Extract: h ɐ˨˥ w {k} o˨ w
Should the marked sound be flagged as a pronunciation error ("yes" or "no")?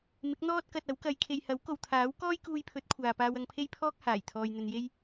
no